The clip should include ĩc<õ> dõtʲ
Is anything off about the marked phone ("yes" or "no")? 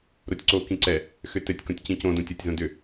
no